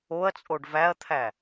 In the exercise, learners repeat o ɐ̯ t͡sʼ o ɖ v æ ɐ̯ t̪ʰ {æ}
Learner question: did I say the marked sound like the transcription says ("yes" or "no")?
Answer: yes